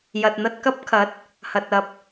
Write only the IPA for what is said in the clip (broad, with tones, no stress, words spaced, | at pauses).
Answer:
jɐ˨t̚n̪ɐ˧t̚kɐ˥p̚kʰɐ˨˥t̚ | hɐ˨t̚ɐ˨p̚